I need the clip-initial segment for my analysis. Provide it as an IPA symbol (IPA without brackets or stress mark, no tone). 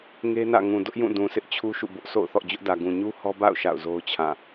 ŋ